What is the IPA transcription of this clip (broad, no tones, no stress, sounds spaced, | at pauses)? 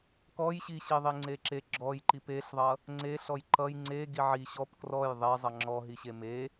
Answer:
k ɔ j ɕ i ɕ i ðˤ i ŋ͡ǀ e ǁ e ɡ͡ǁ ɔ j ǃ i p e ɬ ðˤ ʌ | ŋ͡ǀ e ɬ ɔ j ǃ ʌ j ŋ͡ǀ e ɡ i ʕ i ɕ ɔ p k r ɔ j ðˤ e zˤ ʌ ŋ͡ǁ ɔ ɦ i ɕ e m e